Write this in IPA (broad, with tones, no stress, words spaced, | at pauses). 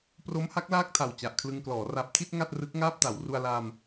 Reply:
pro˦˥mha˦˥k̚ laː˥˩k̚tʰa˨˩w t͡ɕa˨˩ʔkʰlɯ˧ŋklɔː˩˦ ra˨˩p̚tʰi˥˩t̚ ŋa˥˩t̚rɯ˦˥k̚ŋaː˥˩p̚ta˩˦w ru˧a̯la˧m